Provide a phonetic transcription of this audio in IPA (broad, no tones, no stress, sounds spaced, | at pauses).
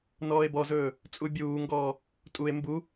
n ɔː e̯ b ɔ z ɵː | t͡sʼ u bʲ uː ŋ ɡ ɔː | tʼ u e̯ m b u